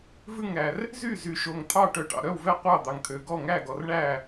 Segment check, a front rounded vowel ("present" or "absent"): present